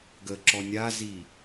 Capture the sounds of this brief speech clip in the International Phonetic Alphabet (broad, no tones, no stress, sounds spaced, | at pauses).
ɡ ə ǁ ɔ nʲ a z i